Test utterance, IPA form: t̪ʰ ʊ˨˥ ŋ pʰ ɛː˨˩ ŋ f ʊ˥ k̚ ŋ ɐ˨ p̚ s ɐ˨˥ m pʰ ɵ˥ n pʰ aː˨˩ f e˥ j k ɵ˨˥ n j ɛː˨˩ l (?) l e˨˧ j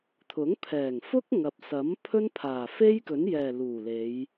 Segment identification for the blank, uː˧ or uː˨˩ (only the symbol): uː˨˩